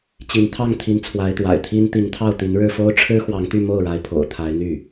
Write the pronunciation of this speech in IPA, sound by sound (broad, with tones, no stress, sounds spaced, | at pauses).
t͡ɕ i˧˥ n t̪ʰ ɑ˥˩ ŋ t̪ʰ i˧˥ n t͡sʰ w a˧˥ ɪ̯ t̪ w a̰˨˩ ɪ̯ t̪ʰ i˥ n t̪ i˧˥ ŋ t̪ʰ ɑ˥˩ ʊ̯ t̪ i˧˥ n ɻ ɻ̩˥˩ f o˥ ʊ̯ ʈ͡ʂʰ ɻ̩˥ x w ɑ˧˥ ŋ t̪ y˥˧ m o˥˩ ʊ̯ ɻ a˧˥ ɪ̯ pʰ o̰˨˩ ʊ̯ t̪ʰ a˧˥ ɪ̯ n̪ y˥˩